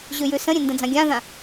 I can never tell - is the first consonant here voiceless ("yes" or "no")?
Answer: no